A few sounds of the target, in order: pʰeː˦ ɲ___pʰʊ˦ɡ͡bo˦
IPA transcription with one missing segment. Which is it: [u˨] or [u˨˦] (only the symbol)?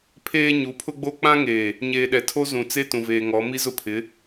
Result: u˨˦